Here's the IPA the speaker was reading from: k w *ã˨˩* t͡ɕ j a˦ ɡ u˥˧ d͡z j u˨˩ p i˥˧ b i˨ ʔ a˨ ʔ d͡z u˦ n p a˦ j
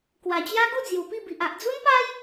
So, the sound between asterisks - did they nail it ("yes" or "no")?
no